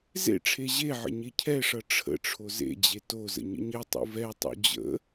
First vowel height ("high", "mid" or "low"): mid